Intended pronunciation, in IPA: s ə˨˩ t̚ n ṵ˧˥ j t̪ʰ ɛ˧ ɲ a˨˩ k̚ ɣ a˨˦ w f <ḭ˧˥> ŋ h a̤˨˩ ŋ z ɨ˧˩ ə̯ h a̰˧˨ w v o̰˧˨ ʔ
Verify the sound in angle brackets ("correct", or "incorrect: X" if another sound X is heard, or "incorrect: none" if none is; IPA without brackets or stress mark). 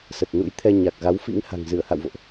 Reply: correct